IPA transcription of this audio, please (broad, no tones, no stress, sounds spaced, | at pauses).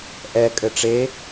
ʔ ɛ kʼ ɘ ʈ͡ʂ e